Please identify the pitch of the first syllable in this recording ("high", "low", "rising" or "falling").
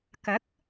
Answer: rising